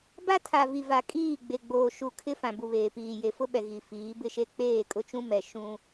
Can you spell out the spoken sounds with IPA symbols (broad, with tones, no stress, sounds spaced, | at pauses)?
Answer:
b a˦ tʰ a˨ v i˨ v a˨ kʼ iː˦˨ ɡ͡b e˨ ɡ͡b oː˨ ʃ u˨ kʰ ɪ˦ f ã˨ b u˨ β eː˨ p iː˨ j e˨ f ʊ˦ ɓ ɛ˨ ɣ i˨ f iː˨˦ b ɪ˦ ʃ e˦ k͡p eː˦˨ kʼ ʊ˦ t͡ʃ ũ˦ m ɛ˨ ʃ ũ˦